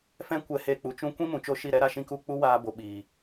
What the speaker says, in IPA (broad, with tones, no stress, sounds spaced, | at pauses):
f ɛ̃˦ kʷ ɛ˧ h e˧ k͡p u˨ t͡ʃ ũ˦ kʷ ĩ˦ m ũ˨ t͡ʃ o˦ ʃ i˦˨ ɾ ɛ˦ ɾ a˦ ʃ ĩ˧ k u˦˨ k͡p u˦ w aː˧ b o˨ ɓ iː˨